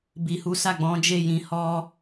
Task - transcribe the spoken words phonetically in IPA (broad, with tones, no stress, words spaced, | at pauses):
bi˨hu˨˦ sa˦˨ɡ͡bɔ̃˨˦d͡ʒe˦˨ jĩ˨hɔ˧